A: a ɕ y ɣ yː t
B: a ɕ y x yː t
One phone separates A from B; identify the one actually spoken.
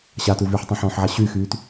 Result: B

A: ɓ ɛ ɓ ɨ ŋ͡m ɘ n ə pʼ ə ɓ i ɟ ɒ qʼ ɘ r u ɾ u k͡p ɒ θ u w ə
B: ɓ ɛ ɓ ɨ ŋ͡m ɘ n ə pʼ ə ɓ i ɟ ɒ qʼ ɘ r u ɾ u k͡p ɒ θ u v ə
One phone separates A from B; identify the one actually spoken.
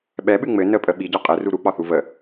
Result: B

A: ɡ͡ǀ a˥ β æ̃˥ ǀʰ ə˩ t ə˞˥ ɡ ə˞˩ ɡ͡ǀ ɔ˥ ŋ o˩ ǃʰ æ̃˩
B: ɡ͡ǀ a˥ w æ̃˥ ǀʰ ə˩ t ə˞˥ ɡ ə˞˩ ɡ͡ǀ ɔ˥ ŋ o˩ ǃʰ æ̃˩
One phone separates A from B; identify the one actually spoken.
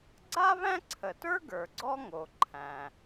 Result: A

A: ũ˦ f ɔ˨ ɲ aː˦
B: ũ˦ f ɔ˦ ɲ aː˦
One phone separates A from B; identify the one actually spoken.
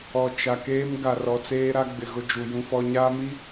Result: B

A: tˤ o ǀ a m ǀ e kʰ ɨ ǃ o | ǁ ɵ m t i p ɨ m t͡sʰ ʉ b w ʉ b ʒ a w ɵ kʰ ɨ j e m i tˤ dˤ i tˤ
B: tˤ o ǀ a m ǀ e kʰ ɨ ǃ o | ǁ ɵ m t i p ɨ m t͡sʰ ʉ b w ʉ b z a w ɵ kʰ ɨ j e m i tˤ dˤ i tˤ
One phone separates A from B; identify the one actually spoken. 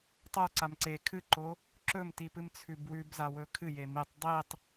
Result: B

